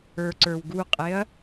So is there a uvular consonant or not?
yes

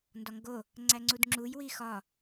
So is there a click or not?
yes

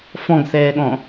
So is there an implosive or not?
yes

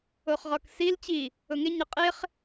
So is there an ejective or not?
yes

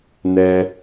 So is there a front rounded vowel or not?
no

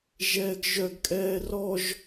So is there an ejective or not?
yes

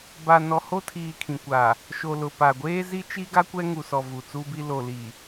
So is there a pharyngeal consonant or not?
no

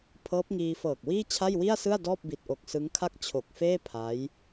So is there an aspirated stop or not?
yes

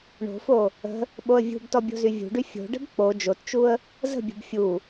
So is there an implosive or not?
yes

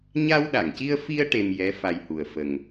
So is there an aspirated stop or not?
no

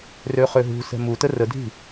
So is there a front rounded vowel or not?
yes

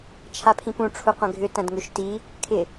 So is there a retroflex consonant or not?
yes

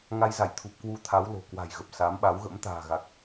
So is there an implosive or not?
yes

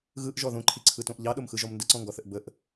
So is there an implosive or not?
yes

